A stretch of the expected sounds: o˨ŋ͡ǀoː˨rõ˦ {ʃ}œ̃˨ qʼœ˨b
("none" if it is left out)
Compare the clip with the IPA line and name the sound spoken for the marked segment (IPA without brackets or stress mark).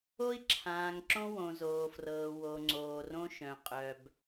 ʃ